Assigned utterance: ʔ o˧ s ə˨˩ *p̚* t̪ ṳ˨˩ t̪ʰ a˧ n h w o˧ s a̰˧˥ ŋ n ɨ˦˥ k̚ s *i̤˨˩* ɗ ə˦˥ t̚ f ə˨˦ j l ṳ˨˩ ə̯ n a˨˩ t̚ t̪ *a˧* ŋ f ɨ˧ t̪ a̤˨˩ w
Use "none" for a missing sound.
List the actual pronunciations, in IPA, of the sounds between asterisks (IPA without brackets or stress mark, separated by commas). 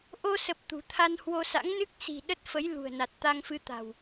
p̚, i̤˨˩, a˧